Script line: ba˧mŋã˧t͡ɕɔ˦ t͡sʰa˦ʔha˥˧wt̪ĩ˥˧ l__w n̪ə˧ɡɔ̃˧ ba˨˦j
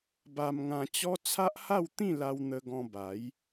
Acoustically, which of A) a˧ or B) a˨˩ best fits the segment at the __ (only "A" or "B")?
A